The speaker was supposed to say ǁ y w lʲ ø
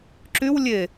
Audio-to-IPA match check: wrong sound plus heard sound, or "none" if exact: ø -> e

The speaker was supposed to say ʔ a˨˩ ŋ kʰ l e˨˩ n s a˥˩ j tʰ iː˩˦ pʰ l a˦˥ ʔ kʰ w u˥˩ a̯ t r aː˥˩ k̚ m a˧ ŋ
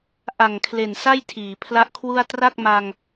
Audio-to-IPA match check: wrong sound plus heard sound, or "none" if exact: aː˥˩ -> a˥˩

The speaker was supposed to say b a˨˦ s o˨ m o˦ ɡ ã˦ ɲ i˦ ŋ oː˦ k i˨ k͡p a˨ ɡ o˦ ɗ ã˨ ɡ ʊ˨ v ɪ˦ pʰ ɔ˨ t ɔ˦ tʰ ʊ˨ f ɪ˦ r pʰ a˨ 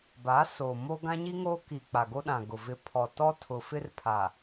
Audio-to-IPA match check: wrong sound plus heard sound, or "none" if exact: none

